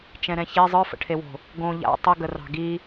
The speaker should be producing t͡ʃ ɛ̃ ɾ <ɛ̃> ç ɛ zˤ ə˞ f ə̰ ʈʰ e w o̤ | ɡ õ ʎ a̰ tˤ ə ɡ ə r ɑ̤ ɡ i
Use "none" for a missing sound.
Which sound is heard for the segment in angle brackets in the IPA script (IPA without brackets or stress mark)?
ɛ̃